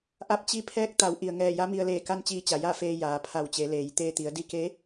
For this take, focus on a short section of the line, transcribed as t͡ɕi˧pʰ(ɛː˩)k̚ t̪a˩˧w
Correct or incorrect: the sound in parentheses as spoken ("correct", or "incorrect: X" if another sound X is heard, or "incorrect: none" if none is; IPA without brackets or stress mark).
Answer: incorrect: ɛː˧˥